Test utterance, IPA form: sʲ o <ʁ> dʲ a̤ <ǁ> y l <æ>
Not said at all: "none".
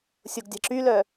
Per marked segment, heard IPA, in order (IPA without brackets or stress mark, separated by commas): ɡ, ǁ, œ